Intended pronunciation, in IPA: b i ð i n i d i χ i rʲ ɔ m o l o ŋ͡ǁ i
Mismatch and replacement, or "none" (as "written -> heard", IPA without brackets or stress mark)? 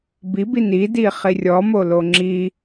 ð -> b